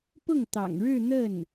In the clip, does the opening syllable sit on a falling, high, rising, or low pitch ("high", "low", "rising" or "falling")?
falling